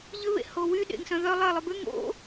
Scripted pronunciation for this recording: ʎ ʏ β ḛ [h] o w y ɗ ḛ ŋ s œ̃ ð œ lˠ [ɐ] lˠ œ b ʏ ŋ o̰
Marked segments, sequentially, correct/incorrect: correct, correct

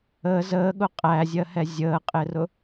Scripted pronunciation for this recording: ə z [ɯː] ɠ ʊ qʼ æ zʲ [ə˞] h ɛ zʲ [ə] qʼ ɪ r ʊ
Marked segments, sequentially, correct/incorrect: incorrect: əː, incorrect: ɜ, incorrect: əː

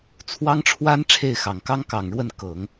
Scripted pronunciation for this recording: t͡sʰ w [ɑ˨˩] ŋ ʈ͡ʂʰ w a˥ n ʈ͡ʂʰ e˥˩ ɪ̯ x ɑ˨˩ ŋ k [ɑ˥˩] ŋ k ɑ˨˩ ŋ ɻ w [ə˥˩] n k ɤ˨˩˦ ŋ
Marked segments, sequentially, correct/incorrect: incorrect: ɑ˥, incorrect: ɑ˥, correct

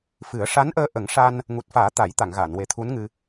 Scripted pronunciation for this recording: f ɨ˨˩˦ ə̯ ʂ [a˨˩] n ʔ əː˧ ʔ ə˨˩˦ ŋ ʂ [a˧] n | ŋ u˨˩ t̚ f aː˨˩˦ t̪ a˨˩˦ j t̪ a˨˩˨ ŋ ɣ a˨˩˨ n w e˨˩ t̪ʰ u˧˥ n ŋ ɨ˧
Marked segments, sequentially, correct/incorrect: incorrect: a˧˥, correct

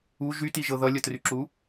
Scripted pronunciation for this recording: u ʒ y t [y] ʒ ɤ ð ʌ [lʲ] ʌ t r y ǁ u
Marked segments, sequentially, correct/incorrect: incorrect: i, correct

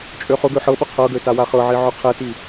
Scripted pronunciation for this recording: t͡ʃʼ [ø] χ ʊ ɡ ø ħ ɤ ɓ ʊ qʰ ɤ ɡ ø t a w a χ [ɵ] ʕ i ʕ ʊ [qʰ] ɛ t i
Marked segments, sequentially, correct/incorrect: correct, incorrect: ɤ, correct

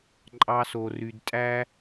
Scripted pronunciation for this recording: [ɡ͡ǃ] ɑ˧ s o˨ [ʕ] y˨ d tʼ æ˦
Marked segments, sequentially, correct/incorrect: incorrect: ǃʼ, incorrect: r

